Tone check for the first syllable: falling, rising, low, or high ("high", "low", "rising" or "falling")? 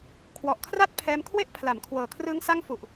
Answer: low